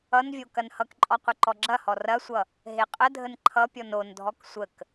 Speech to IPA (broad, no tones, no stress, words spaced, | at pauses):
ʌnvʲo kɐnhʌkǃʼɔ qʷəǃɔɡ͡ǁɐhɔ rɐsʷʌ | ɦeqʼədʱən ǃʰʌpʲɔn ondʱɔk sʷək